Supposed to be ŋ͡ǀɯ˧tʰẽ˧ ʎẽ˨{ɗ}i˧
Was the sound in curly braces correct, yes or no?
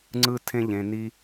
no